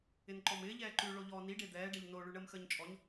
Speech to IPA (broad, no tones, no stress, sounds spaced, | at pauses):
ɪ n ǃ ɔ m ɪː ʎ ɛː ǃ ʉ ɭ o ʎ ɔː n i ɖ e d̪ ɛː ɖ ɛ ʎ n o ɭ ʉ ɳ əː m x əː ɲ t͡ʃʼ ɔ ɲ